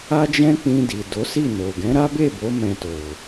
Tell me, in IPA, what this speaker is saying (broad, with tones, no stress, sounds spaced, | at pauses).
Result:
a˦ d͡ʒ ɛ̃˦ k͡p ĩ˧ d i˨ d o˨˦ s i˦˨ n o˨ ɡ ɛ̃˨˦ ɾ a˦ b e˦˨ b o˨˦ m ɛ̃˧ t o˨